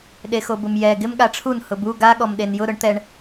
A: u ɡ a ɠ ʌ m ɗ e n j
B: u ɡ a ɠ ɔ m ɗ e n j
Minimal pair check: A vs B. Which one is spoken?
B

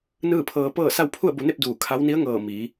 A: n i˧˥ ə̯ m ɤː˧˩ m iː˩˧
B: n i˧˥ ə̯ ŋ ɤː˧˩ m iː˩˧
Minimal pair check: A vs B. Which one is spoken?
B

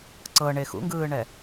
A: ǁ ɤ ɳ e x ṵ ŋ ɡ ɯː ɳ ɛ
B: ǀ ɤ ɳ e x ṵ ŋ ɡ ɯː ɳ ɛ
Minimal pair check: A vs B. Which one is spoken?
B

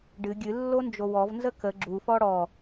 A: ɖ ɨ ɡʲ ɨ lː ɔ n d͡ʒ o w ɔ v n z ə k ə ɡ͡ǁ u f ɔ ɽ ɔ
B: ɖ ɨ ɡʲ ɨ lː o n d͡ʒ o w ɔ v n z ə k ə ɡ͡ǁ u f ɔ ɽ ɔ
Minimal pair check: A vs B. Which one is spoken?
B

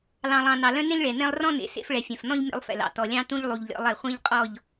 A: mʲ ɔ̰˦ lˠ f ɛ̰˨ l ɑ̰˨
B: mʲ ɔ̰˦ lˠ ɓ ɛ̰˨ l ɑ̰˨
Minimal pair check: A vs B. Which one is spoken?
A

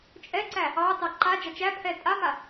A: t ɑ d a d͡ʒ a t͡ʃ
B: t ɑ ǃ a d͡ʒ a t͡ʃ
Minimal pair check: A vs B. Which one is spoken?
B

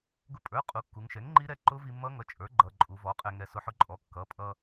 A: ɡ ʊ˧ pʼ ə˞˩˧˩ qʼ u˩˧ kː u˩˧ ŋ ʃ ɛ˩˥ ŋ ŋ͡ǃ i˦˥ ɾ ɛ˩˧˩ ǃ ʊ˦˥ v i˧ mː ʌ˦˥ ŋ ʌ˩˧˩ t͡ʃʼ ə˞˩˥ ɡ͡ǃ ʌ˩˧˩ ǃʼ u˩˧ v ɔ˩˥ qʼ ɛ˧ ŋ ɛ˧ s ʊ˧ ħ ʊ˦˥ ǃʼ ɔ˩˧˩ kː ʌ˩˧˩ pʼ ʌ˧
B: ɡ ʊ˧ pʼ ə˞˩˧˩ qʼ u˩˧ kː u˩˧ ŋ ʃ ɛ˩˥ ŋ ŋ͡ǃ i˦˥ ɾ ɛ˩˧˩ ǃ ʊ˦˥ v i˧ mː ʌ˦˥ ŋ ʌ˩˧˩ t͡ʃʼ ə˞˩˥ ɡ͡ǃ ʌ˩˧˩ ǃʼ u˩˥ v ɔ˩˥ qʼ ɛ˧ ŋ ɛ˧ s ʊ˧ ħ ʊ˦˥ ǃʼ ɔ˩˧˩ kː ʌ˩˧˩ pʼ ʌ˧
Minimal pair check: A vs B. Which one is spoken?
A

